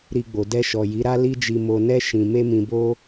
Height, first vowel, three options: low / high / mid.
high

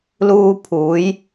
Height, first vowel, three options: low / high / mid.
high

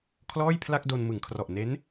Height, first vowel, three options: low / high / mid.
mid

